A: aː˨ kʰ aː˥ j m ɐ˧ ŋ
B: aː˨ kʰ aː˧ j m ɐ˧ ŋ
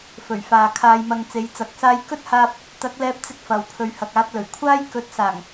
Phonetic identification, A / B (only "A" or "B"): B